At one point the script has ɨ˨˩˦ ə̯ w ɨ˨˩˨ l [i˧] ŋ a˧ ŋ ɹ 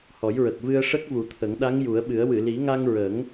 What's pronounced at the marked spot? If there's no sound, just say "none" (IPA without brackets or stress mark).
i˨˩˦